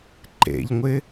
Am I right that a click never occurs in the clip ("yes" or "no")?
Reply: no